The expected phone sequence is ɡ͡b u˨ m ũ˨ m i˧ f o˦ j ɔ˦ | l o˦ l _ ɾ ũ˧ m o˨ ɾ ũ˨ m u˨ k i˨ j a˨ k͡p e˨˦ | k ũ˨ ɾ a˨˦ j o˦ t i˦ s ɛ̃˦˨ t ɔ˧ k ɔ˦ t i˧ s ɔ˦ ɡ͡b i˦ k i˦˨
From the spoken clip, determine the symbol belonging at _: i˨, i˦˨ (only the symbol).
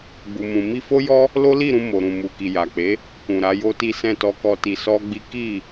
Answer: i˦˨